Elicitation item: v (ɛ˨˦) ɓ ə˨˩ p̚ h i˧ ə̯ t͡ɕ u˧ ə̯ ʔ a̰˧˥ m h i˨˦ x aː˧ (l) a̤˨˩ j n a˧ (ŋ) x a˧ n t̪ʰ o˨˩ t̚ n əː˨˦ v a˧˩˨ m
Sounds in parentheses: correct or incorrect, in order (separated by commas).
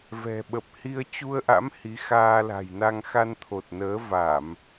incorrect, correct, correct